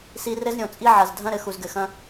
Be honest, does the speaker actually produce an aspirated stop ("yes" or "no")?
no